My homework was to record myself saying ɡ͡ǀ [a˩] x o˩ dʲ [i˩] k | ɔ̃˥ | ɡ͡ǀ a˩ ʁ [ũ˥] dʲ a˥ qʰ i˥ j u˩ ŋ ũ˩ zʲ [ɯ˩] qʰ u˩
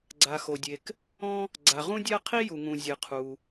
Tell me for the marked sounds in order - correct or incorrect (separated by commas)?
correct, incorrect, correct, correct